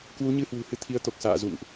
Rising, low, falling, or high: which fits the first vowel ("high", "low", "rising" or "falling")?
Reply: rising